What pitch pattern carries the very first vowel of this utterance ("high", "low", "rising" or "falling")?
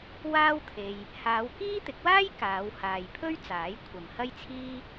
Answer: high